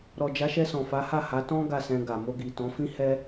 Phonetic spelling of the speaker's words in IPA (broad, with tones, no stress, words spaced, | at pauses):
ɾɔ˨d͡ʒa˨˦ʃɛ˧ sɔ̃˨fa˨˦ha˦˨ha˨˦ tɔ̃˦ ɡa˦˨sɛ̃˧ɡa˨ mo˧ɡi˨tɔ̃˨˦ fĩ˦hɛ˦